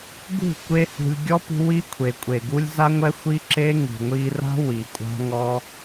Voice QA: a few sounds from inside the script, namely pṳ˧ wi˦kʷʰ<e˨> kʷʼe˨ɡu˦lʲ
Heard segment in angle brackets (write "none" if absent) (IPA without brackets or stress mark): e˨